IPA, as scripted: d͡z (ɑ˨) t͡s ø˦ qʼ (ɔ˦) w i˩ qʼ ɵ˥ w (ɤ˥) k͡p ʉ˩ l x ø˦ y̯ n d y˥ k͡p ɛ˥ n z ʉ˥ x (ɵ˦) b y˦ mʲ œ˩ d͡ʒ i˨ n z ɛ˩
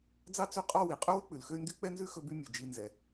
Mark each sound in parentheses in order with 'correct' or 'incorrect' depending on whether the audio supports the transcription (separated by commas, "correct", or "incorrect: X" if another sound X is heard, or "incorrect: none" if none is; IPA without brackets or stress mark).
incorrect: ɑ˥, correct, incorrect: ɵ˥, correct